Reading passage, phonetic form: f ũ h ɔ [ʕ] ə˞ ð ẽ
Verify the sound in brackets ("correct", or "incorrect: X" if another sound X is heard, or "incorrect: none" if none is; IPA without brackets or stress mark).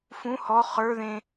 incorrect: χ